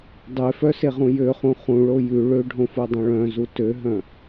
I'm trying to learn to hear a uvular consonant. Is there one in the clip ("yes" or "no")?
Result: yes